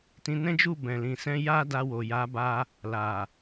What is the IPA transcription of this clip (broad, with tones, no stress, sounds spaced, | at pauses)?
t ĩ˧ n ɛ̃˦ d͡ʒ u˦˨ b ɛ̃˨ l ĩ˨ s ɛ̃˧ j a˦ d a˧ w o˨ j a˨˦ b a˧ | l a˨